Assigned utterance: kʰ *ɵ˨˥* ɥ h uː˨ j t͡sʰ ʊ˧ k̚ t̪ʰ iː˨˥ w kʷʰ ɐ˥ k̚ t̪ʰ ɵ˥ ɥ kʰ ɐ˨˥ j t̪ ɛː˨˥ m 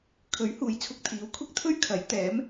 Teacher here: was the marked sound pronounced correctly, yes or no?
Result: yes